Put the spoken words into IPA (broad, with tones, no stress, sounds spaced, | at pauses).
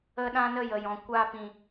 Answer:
ə˧ ɗ ã˧ n ə˧ j ə˨ j ɔ̃˨ kʷ a˧ p ĩ˨